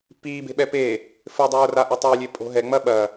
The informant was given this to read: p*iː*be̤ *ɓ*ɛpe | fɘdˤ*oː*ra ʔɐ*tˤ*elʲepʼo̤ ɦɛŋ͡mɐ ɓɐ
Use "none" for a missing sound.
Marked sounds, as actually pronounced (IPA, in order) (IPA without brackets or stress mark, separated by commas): iː, ɓ, oː, tˤ